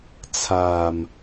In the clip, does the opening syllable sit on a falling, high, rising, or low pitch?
low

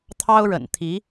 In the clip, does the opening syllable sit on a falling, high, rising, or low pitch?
high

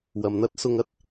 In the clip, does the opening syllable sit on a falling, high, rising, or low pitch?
low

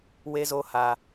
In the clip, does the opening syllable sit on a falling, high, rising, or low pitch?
high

